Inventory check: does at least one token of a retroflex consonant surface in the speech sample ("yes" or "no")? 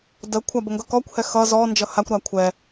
no